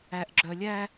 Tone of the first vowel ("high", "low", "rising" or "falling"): high